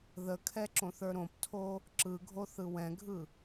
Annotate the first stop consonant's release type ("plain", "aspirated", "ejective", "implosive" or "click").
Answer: aspirated